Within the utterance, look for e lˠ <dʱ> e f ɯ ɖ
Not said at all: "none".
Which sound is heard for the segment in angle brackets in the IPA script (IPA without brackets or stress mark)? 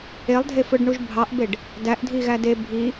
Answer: dʱ